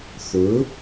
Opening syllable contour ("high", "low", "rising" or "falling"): rising